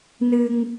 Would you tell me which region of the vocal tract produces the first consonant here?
tongue tip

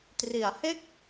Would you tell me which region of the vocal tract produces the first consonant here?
tongue tip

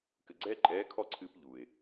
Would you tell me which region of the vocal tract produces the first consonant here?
velum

